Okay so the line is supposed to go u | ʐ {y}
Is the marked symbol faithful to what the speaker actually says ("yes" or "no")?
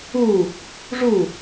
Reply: no